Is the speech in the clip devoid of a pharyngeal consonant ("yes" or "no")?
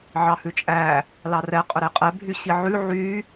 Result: no